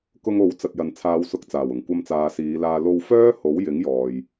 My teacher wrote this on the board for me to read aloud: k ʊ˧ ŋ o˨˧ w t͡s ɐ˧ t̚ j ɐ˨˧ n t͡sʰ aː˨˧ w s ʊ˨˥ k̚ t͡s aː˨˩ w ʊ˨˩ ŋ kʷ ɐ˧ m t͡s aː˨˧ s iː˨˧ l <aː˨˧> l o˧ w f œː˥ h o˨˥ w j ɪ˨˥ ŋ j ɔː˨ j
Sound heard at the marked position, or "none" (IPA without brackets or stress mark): aː˧